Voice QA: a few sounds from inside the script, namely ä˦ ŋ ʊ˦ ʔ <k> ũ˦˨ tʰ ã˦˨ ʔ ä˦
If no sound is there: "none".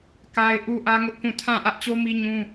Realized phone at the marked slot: k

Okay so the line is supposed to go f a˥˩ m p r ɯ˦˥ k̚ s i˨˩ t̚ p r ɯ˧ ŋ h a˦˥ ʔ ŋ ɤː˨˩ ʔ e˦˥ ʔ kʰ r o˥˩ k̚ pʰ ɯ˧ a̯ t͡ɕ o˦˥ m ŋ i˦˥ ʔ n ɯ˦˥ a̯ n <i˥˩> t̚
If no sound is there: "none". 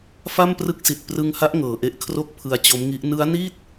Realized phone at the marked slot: i˥˩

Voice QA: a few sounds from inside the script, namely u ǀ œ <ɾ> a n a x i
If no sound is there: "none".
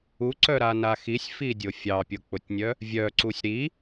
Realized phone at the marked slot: ɾ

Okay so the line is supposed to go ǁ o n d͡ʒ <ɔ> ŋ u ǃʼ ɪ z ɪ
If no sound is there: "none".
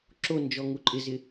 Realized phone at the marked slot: ɔ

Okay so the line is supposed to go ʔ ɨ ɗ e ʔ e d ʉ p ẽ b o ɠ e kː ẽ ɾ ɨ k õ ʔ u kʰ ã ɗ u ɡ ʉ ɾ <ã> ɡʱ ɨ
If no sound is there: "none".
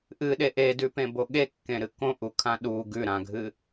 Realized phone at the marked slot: ã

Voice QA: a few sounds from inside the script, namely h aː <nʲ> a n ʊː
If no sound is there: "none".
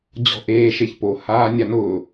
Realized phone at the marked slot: nʲ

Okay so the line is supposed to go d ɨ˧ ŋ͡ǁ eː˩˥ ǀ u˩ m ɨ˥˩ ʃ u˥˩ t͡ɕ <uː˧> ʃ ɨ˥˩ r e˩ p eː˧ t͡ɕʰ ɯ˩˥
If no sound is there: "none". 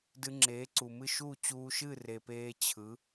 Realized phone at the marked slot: uː˧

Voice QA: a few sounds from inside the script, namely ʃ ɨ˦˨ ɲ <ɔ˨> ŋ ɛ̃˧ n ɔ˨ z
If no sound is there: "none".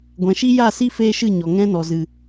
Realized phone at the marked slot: ɔ˨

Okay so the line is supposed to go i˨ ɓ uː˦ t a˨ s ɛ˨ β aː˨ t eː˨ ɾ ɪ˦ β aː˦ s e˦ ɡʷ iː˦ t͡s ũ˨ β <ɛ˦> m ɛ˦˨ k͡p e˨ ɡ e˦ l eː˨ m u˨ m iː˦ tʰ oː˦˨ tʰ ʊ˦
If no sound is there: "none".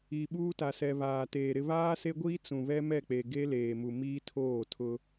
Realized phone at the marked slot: ɛ˦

